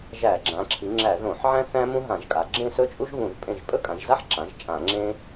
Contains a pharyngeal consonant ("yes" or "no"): yes